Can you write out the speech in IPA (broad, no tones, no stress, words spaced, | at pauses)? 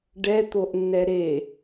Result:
ɖɛt̪oʔnːɛ ɾe